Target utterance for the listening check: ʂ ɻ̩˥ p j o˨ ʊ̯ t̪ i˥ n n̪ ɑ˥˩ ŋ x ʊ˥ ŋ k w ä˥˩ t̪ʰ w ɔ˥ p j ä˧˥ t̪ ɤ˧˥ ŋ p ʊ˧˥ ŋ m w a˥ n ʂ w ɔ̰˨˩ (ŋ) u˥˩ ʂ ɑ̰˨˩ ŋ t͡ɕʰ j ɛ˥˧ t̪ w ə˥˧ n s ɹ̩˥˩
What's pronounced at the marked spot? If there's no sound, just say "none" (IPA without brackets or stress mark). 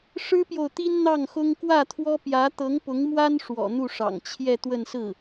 n̪